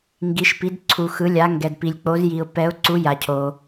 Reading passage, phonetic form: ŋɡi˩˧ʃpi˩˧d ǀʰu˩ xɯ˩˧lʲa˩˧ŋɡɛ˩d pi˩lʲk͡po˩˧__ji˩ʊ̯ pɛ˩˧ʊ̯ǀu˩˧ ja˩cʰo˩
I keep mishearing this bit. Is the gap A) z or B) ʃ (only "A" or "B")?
A